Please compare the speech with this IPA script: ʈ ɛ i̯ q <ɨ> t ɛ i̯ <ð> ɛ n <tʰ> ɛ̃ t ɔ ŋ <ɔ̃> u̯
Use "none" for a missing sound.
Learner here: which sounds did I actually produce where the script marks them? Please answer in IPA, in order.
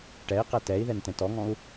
ɛ, ð, t, ɔ̃

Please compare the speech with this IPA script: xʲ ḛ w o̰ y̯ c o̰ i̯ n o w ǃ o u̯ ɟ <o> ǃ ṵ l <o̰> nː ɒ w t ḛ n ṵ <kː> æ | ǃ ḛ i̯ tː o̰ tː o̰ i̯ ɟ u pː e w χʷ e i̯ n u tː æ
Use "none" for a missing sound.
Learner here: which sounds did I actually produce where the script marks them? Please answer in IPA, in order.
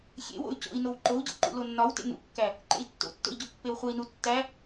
o̰, o, kː

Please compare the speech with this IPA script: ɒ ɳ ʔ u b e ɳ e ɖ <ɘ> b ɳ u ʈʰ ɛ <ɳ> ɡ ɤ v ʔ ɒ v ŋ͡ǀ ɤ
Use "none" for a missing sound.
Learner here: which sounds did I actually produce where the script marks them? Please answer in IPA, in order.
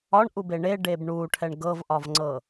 e, ɳ

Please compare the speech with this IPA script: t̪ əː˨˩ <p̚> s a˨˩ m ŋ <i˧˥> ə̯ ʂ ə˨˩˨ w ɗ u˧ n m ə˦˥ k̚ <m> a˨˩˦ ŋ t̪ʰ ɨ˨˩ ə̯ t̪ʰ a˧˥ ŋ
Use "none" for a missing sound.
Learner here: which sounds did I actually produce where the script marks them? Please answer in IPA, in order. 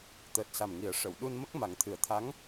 t̚, i˨˩˦, m

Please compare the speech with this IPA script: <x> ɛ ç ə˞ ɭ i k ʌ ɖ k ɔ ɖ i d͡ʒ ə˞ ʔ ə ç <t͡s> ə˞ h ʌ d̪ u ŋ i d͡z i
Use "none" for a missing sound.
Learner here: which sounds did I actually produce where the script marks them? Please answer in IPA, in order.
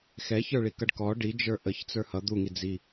x, t͡s

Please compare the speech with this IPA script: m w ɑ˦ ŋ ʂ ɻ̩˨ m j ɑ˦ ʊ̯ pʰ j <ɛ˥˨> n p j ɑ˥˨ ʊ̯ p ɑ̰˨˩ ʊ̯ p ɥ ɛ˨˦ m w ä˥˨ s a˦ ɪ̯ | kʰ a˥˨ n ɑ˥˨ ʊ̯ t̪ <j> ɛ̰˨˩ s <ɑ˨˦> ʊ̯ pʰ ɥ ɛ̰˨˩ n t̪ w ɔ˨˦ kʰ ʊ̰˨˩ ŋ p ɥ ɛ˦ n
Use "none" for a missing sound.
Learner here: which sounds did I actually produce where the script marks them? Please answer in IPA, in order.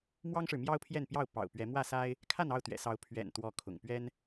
ɛ˥˨, ɥ, ɑ˨˦

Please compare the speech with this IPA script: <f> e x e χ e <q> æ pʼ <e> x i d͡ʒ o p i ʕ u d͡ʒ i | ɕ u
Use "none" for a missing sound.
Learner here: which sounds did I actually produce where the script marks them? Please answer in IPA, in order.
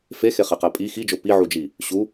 f, q, i

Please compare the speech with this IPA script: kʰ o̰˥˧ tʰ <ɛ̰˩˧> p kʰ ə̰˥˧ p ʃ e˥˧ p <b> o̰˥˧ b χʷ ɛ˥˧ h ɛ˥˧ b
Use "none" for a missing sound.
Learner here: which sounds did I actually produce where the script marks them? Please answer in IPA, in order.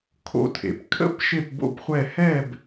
ḛ˩˧, b

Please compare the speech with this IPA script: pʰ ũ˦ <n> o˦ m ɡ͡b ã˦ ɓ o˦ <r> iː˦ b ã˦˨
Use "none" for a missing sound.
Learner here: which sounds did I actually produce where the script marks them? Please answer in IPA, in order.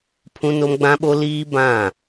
n, l

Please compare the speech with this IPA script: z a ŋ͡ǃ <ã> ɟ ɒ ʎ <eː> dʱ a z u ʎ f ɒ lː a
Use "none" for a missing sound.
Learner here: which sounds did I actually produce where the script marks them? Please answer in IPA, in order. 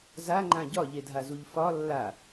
ã, e

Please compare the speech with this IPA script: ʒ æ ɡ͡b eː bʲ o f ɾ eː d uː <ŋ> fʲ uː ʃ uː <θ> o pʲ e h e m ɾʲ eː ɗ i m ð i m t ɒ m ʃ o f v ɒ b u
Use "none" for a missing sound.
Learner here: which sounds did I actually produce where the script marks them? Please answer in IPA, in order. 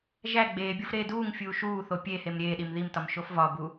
ŋ, θ

